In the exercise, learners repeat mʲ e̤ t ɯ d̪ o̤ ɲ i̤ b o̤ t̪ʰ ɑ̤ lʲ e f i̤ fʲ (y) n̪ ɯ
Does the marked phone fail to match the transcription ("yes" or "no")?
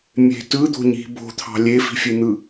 yes